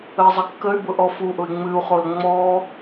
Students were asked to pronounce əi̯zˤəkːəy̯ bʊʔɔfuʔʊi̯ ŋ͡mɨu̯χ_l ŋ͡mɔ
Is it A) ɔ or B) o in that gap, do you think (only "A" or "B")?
B